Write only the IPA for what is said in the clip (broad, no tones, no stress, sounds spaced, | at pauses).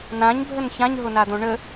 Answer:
n ã ɲ bʱ ə n ç ã ɲ ɦ ʊ n a d̪ õ ɳ ə